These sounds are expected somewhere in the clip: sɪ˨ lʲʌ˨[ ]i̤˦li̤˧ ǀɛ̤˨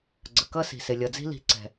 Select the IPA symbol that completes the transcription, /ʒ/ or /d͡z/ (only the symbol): d͡z